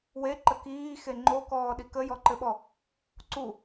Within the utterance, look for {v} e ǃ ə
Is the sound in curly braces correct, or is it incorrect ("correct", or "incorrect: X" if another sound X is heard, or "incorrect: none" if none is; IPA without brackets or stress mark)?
incorrect: w